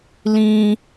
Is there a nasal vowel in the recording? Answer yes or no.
yes